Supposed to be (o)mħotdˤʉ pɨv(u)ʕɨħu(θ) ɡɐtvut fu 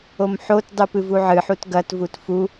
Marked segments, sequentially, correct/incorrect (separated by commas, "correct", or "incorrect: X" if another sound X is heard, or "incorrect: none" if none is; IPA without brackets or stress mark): correct, correct, incorrect: t